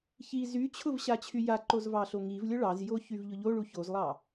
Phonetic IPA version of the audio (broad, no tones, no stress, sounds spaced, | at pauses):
ç i z y t͡ɕʰ ʊ v ɕ a t͡ɕʰ y j a ǃ o z v ɑ ɬ o ŋ i v lʲ ʊ ɭ ɑ z j o ç y v ʎ ʊ ʎ o ɭ u ç o z lˠ ɑ